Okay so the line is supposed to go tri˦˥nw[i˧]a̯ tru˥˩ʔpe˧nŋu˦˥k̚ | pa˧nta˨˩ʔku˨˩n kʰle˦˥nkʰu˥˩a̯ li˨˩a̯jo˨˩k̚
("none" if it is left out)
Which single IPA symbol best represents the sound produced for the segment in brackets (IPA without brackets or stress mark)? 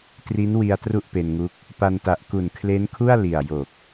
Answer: i˧